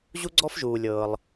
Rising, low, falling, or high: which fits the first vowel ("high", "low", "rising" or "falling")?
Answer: high